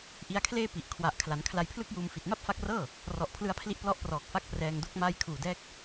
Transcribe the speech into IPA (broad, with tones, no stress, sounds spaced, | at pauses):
ʔ i˧ a̯ kʰ l eː˥˩ p i˨˩ ʔ kʰ w a˨˩ ʔ kʰ l a˩˦ n kʰ l a˧ j pʰ l ɯ˥˩ k̚ j uː˧ m f i˨˩ t̚ m a˥˩ p̚ f a˦˥ k̚ r ɤː˥˩ | r ɔ˨˩ ʔ pʰ l ɯ˧ a̯ pʰ l i˦˥ ʔ p l ɔ˦˥ ʔ p r ɔː˨˩ k̚ f a˦˥ k̚ p r ɛː˧ ŋ d o˥˩ k̚ m aː˧ j kʰ uː˨˩ d ɛː˦˥ k̚